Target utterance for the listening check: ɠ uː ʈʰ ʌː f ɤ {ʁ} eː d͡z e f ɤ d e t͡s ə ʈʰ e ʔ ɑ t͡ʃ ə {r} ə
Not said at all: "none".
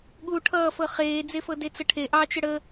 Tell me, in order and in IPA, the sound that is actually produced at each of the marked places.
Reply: χ, ɽ

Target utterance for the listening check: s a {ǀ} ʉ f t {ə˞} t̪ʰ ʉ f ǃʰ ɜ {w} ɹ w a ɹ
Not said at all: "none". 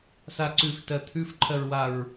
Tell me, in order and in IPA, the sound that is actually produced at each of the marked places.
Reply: ǀ, ɜ, none

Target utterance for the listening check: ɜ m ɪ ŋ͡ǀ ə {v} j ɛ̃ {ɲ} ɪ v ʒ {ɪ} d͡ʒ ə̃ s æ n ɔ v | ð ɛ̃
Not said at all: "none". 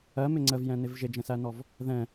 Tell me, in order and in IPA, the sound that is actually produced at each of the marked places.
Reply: v, n, ɪ

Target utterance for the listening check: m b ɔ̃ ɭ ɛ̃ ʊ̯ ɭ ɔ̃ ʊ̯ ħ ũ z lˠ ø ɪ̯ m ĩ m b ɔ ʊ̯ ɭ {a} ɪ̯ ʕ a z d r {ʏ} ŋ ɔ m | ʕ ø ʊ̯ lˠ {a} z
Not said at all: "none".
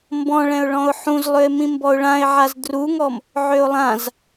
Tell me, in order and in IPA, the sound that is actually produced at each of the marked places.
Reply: ã, u, ã

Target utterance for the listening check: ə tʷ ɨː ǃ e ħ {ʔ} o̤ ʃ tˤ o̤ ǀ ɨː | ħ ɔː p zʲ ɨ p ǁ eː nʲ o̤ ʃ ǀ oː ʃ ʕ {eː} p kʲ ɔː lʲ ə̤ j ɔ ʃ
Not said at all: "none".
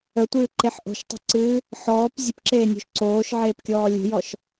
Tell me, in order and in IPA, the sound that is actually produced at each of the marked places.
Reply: ʔ, eː

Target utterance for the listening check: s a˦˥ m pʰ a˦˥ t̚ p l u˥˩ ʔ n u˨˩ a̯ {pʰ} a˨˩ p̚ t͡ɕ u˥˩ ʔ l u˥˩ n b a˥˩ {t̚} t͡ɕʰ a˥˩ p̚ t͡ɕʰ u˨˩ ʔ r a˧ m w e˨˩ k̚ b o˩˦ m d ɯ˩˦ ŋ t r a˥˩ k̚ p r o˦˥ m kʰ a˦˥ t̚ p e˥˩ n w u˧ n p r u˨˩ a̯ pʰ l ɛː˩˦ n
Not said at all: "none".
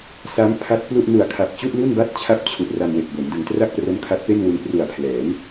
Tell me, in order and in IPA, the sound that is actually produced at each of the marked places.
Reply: kʰ, t̚

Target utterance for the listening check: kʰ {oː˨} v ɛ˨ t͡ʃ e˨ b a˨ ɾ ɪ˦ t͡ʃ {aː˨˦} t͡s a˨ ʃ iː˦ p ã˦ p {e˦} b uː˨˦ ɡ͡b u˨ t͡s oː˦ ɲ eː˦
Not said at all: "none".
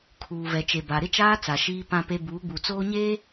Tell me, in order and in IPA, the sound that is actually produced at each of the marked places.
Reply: uː˨, aː˦, e˦

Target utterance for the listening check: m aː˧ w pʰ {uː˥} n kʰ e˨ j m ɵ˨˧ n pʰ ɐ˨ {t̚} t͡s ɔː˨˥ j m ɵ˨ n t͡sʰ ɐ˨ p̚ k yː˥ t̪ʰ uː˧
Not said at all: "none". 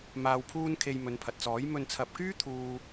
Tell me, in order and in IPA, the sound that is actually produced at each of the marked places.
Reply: uː˥, t̚

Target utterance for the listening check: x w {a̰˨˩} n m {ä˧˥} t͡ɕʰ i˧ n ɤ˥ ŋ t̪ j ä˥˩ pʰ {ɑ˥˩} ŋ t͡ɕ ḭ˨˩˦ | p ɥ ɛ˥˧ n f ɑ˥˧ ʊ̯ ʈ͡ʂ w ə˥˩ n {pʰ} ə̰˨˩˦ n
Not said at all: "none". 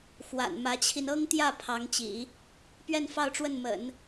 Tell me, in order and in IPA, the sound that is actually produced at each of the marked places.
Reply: a̰˨˩, ä˧˥, ɑ˧˥, m

